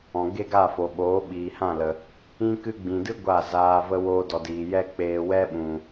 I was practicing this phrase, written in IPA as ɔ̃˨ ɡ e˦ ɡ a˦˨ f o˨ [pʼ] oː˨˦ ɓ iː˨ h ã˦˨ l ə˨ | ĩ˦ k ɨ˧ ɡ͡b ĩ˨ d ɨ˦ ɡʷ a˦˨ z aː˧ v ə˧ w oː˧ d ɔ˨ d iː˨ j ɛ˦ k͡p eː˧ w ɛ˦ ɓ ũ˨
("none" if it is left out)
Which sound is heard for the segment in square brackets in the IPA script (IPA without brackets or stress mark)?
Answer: ɓ